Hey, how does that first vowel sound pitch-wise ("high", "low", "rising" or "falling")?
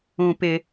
high